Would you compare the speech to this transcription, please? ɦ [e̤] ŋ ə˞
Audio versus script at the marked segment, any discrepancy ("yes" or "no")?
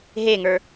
yes